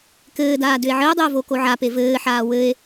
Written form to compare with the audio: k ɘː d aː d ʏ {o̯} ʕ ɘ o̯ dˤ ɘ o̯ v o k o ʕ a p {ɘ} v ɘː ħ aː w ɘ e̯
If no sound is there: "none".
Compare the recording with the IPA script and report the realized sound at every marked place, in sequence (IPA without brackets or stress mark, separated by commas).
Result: e̯, e